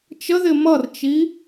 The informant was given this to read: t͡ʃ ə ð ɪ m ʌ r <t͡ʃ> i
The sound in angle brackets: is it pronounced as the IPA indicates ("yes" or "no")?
yes